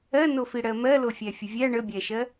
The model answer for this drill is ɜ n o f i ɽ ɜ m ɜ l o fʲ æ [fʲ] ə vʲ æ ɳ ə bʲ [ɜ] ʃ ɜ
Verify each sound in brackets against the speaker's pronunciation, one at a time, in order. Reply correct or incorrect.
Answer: correct, incorrect: æ

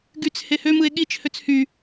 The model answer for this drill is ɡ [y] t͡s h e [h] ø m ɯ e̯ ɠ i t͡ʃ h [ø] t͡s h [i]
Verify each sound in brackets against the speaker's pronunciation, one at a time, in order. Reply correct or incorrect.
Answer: correct, correct, correct, incorrect: y

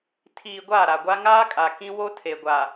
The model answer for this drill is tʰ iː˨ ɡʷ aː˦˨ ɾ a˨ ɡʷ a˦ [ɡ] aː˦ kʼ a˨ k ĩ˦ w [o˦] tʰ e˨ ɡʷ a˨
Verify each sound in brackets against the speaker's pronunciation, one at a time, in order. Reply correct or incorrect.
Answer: incorrect: ŋ, correct

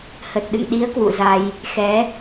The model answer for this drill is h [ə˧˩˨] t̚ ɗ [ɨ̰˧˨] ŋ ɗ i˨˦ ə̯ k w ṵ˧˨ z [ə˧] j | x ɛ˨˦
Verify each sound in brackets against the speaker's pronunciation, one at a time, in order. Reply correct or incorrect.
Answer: incorrect: ə˨˩, correct, incorrect: a˧

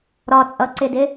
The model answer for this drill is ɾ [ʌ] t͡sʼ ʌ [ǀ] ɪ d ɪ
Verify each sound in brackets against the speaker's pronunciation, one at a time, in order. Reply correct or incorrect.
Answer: incorrect: ɒ, correct

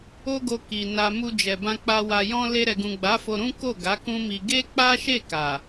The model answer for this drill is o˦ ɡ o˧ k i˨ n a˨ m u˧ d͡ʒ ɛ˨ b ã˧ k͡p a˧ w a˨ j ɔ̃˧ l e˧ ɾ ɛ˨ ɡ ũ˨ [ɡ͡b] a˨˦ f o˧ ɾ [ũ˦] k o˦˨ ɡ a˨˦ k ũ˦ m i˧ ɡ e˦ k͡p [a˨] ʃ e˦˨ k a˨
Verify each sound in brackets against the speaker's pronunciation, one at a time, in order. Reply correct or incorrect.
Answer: correct, correct, incorrect: a˦

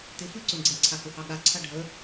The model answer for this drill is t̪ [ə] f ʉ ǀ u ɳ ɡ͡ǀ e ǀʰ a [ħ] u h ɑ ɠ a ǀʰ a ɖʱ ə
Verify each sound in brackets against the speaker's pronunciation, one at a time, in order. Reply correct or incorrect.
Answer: incorrect: ɪ, incorrect: h

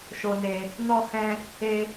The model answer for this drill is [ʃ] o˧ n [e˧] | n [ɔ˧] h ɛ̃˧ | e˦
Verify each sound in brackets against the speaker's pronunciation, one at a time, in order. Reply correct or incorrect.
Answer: correct, correct, correct

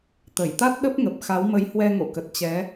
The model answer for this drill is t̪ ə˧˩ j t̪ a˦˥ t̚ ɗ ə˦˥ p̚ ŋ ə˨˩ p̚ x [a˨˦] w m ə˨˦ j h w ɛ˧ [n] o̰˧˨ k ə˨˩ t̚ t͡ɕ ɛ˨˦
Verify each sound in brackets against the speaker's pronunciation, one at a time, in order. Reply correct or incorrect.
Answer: correct, incorrect: ŋ

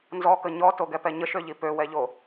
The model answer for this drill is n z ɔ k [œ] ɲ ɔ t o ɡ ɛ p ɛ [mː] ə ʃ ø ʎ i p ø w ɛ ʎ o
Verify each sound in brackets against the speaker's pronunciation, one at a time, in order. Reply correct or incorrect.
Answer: incorrect: ə, incorrect: ɲ

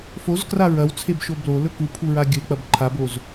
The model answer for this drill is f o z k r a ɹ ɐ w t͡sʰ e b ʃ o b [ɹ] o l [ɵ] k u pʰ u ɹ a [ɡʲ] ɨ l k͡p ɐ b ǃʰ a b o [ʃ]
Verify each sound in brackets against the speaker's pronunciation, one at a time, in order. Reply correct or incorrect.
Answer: incorrect: l, correct, correct, incorrect: z

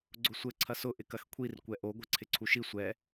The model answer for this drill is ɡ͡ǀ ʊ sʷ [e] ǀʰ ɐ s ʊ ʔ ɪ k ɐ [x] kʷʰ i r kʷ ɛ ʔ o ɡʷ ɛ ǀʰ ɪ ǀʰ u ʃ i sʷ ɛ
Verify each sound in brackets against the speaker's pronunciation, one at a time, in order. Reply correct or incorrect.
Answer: incorrect: ɘ, correct

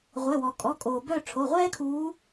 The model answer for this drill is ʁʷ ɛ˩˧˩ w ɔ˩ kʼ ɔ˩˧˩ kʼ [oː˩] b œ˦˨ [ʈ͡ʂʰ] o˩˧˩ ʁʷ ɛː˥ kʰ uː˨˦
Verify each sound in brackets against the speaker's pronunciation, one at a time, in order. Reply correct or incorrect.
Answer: correct, correct

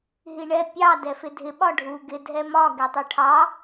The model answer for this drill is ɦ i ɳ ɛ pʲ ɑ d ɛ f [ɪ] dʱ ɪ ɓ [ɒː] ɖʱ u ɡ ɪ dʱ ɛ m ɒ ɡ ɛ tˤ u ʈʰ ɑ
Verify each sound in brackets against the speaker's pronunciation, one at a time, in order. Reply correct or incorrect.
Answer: correct, incorrect: ɒ

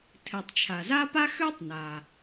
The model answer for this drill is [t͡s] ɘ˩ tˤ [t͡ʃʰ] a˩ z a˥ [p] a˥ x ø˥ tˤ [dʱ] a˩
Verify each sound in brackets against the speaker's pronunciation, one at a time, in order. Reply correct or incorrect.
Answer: incorrect: tʰ, correct, correct, incorrect: n

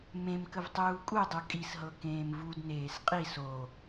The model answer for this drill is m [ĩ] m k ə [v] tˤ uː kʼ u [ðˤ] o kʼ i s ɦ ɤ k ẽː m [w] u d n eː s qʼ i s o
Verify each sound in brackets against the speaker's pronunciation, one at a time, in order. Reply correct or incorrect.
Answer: incorrect: ẽ, correct, incorrect: dˤ, incorrect: v

